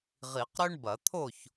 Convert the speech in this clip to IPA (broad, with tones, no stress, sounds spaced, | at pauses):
ʁ i˨˩˦ q ɾ ø˥ ɳ b ɐ˨˩˦ t̪ʰ o˥˨ ç